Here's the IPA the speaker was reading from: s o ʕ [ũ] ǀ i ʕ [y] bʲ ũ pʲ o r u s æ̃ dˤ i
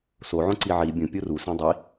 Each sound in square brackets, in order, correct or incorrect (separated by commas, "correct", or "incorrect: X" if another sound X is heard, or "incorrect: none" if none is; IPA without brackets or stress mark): incorrect: õ, incorrect: i